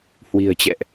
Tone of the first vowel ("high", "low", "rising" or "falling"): low